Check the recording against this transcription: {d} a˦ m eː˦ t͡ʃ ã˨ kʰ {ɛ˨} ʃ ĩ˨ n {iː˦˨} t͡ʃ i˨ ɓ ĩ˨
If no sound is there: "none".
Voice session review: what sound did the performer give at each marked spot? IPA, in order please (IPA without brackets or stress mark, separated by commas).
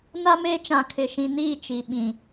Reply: n, ɪ˨, iː˦˨